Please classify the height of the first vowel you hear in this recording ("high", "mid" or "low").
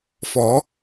mid